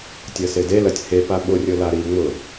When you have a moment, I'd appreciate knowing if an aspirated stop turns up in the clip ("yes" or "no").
no